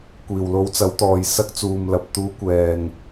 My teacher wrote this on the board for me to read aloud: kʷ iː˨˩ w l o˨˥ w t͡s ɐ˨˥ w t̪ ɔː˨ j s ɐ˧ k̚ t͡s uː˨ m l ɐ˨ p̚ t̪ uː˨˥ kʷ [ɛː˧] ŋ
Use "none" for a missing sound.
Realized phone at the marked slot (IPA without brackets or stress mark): ɛː˨